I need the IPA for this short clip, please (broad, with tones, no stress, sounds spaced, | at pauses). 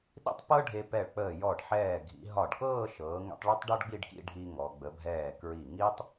ɗ ḭ˥˧ tˤ p ɤ˥ ɖʱ e˧ p ɛ˧˩ ɭ k͡p əː˧˩ j ɔ˧˩ ɖ ħ ɛː˧˩ ɡʱ ḭ˩˧ ɦ ɒ˧˩ ɖ k ɤː˥˧ ʃ ɤː˩˧ ŋ ḭ˧ tˤ ɭ e˥ tˤ ɖ ɔ˥ ɖ ɡ͡b i˥˧ ɖ k ḭ˥˧ ɖʱ i˧ ŋ ɔ˩˧ ɡ͡b ə˩˧ bʱ ɛː˧˩ k ɹ i˧˩ ŋ i˥ tˤ